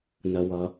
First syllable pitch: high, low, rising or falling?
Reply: low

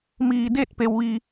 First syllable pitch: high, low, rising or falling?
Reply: low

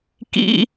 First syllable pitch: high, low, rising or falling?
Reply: high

